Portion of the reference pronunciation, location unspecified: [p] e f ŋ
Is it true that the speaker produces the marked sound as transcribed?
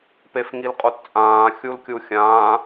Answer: yes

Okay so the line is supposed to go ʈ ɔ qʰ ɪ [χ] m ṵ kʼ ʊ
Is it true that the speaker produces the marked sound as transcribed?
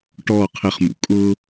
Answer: yes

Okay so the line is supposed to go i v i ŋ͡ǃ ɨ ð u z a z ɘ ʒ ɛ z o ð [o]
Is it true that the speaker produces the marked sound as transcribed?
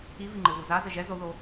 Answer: yes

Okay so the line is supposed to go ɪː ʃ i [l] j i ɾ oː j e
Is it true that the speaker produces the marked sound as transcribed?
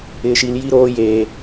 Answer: yes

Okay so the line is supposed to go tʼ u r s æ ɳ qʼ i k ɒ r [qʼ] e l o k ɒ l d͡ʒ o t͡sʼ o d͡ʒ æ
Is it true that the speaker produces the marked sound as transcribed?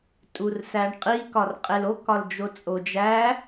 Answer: yes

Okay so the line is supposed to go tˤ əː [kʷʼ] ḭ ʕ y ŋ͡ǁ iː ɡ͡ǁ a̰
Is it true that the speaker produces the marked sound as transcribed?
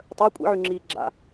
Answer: yes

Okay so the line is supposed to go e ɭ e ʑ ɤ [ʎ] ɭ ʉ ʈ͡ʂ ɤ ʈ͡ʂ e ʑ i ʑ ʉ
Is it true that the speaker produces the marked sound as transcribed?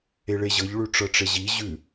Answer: yes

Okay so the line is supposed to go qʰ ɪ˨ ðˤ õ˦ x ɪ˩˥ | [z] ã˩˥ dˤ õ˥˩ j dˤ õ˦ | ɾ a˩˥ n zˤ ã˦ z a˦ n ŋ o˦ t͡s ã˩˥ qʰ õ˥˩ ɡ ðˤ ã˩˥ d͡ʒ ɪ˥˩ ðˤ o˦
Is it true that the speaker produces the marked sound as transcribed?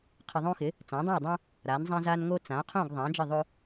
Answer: no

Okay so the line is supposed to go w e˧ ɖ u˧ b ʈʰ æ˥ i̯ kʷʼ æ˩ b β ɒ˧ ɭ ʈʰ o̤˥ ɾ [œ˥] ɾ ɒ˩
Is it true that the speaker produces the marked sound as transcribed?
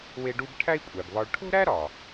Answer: no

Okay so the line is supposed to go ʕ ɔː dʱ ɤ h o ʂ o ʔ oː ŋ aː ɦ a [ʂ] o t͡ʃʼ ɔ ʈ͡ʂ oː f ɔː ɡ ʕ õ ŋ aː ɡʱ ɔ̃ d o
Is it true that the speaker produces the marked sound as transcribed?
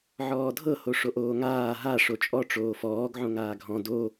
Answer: yes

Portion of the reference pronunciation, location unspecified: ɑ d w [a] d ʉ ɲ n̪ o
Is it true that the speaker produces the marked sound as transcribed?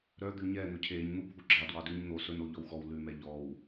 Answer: no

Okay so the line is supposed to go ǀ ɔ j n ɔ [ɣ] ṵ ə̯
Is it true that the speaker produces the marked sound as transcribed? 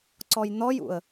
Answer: no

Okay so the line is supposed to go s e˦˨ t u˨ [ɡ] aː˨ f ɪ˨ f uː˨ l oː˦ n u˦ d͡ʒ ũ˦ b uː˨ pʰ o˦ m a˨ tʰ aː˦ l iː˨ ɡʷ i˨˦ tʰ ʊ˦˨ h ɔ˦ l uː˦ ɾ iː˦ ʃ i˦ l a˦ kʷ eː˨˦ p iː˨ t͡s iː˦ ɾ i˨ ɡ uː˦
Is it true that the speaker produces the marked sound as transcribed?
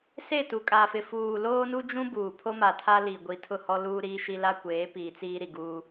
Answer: no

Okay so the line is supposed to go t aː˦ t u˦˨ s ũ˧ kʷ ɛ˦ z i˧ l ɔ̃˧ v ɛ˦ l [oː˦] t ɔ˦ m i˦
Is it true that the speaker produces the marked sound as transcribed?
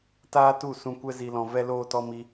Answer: yes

